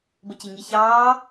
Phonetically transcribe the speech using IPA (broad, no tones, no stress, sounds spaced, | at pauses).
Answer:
b ə c i ŋ i ç ɑː